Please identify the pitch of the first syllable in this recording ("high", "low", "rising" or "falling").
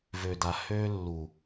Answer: low